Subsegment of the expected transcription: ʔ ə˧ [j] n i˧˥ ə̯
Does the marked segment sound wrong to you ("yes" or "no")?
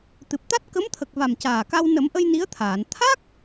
no